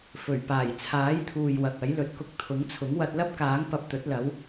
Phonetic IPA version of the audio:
f ɵ˨˩ ɥ p aː˨˩ j t͡sʰ aː˨˥ j t̪ʰ uː˨ j w ɐ˨ k̚ ɐ˨˥ j l ɵ˧ t̚ k ʊ˧ k̚ t̪ʰ ʊ˨˥ ŋ t͡sʰ ʊ˨˥ ŋ w ɐ˧ t̚ l ɐ˥ p̚ k aː˨˥ ŋ p ɐ˧ p̚ t̪ ɵ˨˥ t̚ l ɐ˨˧ w

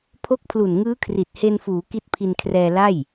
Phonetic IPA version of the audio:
pʰ o˦˥ k̚ pʰ l u˨˩ n ŋ ɯː˦˥ kʰ r i˨˩ t̚ h e˧ n f uː˩˦ k i˦˥ t̚ pʰ i˧ n kʰ r ɛː˧ l a˥˩ j

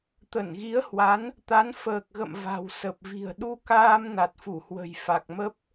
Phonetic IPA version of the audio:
t̪ ə˧˩ n ɣ i˨˦ ə̯ h w a˨˦ n | t̪ a˨˦ n f əː˨˩ k̚ ɣ ə̰˧˨ m v a̤˨˩ w s ə˨˩ p̚ v i̤˨˩ ə̯ ɗ u˧ k aː˧ m n a˨˩ t̚ f u˧˩ h w ə̤˨˩ j f a˨˩ k̚ m ə˦˥ p̚

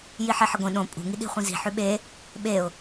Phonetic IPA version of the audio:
j i ħ e ħ ə ɡʷ ĩ ɗ õ pʼ ṳ ŋ i ɗ i̤ χʷ ĩ z i̤ ħ ʉ ɓ e | ɓ e ʊ̯

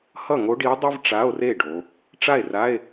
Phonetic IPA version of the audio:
h ʌ˥˩ ŋ o˧˥ ɖ i˧˥ o̯ dˤ ɯ˥ v ʈ͡ʂ a˧˥˧ o̯ r e˥˩ ɖ o˩˧ | ʈ͡ʂ a˥˩ e̯ r a˧˥˧ e̯

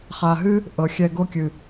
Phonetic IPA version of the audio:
χ a˨ ɦ ɨ˦ | ʔ ɤ˨ xʲ ɛ˧ ɡ o˦ kʲ ɨ˨

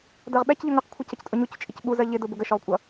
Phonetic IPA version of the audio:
d ɜ ʁ ɓ ɛ c ʎ ʊ ŋ ʌ q kʷʰ ʌ c ə c tʼ ʊ ɲ u c t͡ʃʼ ɪ c ɓ u z ɜ ʎ ɪ d ʊ b ʊ ɡ ə ʃ ɔ ʁ kʷʼ ʌ

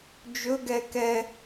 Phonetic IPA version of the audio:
d͡ʒ ɵ ɡ ɛ k ɛ

